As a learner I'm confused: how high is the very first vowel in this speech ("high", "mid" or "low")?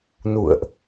high